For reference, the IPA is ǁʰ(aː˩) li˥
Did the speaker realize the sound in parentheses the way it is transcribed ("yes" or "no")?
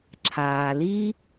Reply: yes